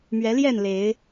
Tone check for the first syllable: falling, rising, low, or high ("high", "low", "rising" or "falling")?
rising